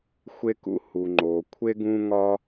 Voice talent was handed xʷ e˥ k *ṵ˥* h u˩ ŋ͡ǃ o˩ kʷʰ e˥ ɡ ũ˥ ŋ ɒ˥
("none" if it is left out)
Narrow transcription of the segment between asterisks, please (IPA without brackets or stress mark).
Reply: ṵ˥